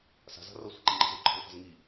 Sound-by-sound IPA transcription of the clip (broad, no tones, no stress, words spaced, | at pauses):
sa̤za̤ rʌsʷɛ̤ǃi ŋ͡ǃɛ̤zuǃʰɛ̤lfa̤z ŋi